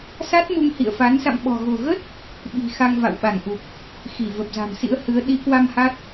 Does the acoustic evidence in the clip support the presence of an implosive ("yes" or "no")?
yes